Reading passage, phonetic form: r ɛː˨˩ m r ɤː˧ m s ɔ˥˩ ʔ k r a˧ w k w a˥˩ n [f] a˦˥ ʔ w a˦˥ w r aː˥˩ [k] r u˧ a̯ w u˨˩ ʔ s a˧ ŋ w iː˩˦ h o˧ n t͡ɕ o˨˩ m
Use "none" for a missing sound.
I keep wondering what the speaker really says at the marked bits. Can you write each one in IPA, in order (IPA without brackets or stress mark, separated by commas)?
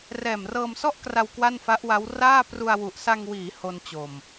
f, p